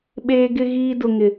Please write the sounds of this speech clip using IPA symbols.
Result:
ɓ eː˦ ɡ ɪ˦ ɣ iː˦ d ʊ˦ ŋ ɪ˦

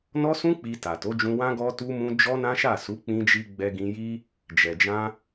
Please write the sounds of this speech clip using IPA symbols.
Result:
n ɔ˦ s ũ˦ k͡p i˧ t a˨ t o˨˦ d͡ʒ ũ˧ w ã˦ ɡ ɔ˧ t u˧ m ũ˧ d͡ʒ ɔ˦ n ã˦ ʃ a˦˨ s u˨˦ k͡p ĩ˧ d͡ʒ i˧ ɡ͡b ɛ˧ ɡ ĩ˧ j i˦ | d͡ʒ ɛ˨ d͡ʒ ã˧

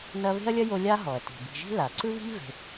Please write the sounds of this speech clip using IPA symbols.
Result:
n ɐ˦ β e̤˥ ɐ̯ lʲ ɐ˥ j o˦ lʲ a˥ ɦ ɔ˩ ɐ̯ t i̤˩ b i̤˨ ʒ i̤˥ l a˩ ǀ ɯ˥ β i̤˥ ʎ v e̤˨

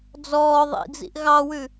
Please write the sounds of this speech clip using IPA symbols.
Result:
d͡z ɔː ðˤ ḭ d͡z ḭ ʔ ɣ ɑ w ʉ

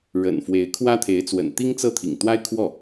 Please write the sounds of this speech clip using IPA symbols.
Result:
ɻ ə̰˨˩ n f w e˧˥ ɪ̯ kʰ w ä˥ t̪ʰ e˧˥ ɪ̯ t͡s w ə̰˨˩ n t̪ i˥ ŋ t͡s ɤ˥ t̪ʰ ḭ˨˩ ŋ t̪ w a˥ ɪ̯ kʰ w ɔ˥˩

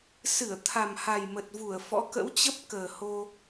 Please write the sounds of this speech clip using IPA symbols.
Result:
s ɨ˧˩ ə̯ t̪ʰ a˨˩ m h a˨˩ j m ə˨˩ t̚ v u˧˩ ə̯ f ɔ̰˧˥ k ə̰˧˥ w t͡ɕ ə˦˥ p̚ k əː˨˩ h o˧

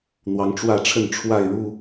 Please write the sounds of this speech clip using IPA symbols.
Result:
n̪ w ɑ˨˦ ŋ ʈ͡ʂ w ä˥˨ ʈ͡ʂʰ ə˥˨ n ʈ͡ʂʰ w a˥˨ ɪ̯ ɻ u˥˨

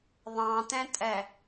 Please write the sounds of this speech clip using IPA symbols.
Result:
ðˤ ɑ̃ t ɛ̃ tʼ ɛ

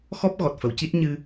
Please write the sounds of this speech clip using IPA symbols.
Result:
x ɔ˦˥ p̚ ɣ ɔ˨˩ t̚ f ə˨˩˨ w c i˦˥ t̚ ɲ ɨ˧

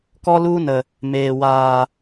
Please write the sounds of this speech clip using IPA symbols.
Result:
k ɔ˦ l u˦ n ə˨ | m eː˨ w aː˨

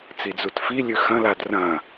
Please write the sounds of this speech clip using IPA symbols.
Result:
t͡s i d͡z u t f i lʲ ʉ x ɐ̃ l a d r ɐ̃

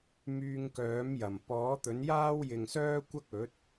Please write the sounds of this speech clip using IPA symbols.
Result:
m yː˧ ŋ k œː˨˥ m j ɐ˨˩ m p ɔː˨˥ t̪ ɵ˨˥ n j aː˥ w j ɪ˨ ŋ s œː˥ kʷ ɐ˥ k̚ ɵ˨˥ t̚

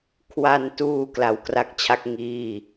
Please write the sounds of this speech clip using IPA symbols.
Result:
kʰ w a˧ n t uː˧ k l a˧ w k r a˥˩ k̚ t͡ɕʰ a˥˩ k̚ ŋ iː˥˩

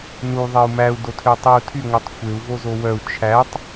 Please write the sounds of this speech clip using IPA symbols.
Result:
n u ðˤ e u̯ m æ u̯ d o tʰ ø tˤ i u̯ tʰ y ŋʷ ɛ tˤ xʷ e u̯ v o z o w œ u̯ t͡ʃʰ æ tˤ

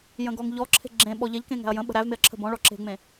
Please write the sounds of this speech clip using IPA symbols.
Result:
j ə̃ ɡ ɔ ŋ ʎ ɔ ǁʰ e̤ ɡ͡ǁ ẽ ɓ ɔ ʎ ɛ ʎ k ẽ ŋ æ̤ ɐ̯ j ə̃ ɓ ə̤ ɾ æ v m e ɐ̯ ǁʰ ə̤ b ɔ̃ ɭ ɔ ǁ e̤ ŋ͡m ẽ

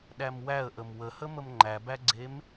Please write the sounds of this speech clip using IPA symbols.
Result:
ɗ æ m w æ ə̯ ʔ ə m w ə h ə m ə m ŋ͡ǃ æ b æ ɡ͡ǀ e m

